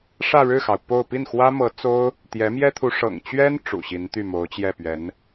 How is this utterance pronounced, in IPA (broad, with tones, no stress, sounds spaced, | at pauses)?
ʂ ä˥˧ ɻ ɻ̩˥˩ x ɑ˩ ʊ̯ p o˥˧ ʊ̯ p i˥˩ n x w ä˥ m ɤ˧˥ t͡s o˥ ʊ̯ | t̪ j ɛ˧˥ m j ɛ˥ t̪ʰ u˧˥ ʂ ɤ̰˨˩ ŋ t͡ɕ ɥ ɛ˥ n ʈ͡ʂ ṵ˨˩ ɕ i˧˥ n t̪ y˥˩ m o˧˥ ʊ̯ t͡ɕ j ɛ˥˩ p ɥ ɛ˧˥ n